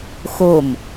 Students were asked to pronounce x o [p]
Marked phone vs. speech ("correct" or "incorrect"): incorrect